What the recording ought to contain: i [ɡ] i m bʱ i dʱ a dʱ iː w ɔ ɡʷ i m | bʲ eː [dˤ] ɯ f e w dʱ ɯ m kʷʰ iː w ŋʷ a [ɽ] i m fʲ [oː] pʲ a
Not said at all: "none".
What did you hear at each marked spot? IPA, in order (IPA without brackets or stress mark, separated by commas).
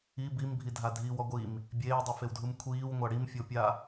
b, dˤ, ɽ, o